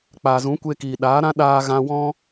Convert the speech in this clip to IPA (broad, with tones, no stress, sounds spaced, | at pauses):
k͡p aː˨ z ũ˨˦ kʷ eː˧ k iː˨ ɗ aː˨˦ ɾ ã˦ ɗ aː˧ ɣ ã˧ w ɔ̃˦